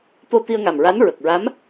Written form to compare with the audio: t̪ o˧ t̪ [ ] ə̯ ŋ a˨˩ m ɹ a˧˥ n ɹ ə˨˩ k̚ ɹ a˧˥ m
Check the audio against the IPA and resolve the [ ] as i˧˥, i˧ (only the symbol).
i˧